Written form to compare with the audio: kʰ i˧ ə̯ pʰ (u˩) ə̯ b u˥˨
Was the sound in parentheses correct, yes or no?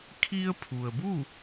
yes